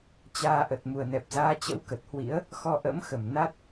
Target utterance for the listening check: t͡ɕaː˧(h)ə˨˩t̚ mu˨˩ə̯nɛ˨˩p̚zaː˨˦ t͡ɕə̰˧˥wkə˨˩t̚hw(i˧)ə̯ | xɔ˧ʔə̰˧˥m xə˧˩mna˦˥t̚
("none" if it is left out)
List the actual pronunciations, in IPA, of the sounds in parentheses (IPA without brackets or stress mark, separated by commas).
ʔ, ḭ˧˥